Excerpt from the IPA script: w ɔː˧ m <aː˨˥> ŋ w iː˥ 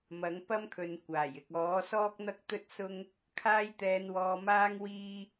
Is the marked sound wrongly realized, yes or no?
yes